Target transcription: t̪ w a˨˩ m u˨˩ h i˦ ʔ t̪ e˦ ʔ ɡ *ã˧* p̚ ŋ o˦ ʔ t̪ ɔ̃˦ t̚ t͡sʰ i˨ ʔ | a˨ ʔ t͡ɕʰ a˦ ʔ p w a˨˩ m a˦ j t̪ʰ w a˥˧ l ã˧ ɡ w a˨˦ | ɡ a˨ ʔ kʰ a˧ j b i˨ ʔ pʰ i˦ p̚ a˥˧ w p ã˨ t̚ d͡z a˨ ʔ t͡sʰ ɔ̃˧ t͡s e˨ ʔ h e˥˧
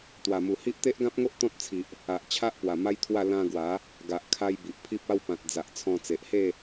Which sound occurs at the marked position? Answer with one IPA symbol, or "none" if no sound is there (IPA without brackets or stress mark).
ã˦